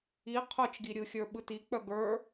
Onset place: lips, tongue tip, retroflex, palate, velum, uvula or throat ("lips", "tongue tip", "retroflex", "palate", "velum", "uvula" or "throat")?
uvula